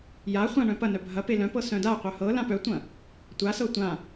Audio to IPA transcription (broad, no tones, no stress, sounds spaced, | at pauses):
j a χʷ ã ɳ œ̃ p ɐ n œ bʱ ɐ p e l œ̃ p ɤ s œ̃ d a qʷ œ h ɤ l ã p œ tʷ ɐ̃ | tʷ a s ɤ tʷ ã